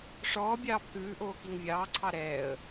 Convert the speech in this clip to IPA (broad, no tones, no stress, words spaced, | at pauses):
ʂɔː bʲɑːbkʉːʔoː kiŋvʲɑːǀʰɑ ɾɛːə̯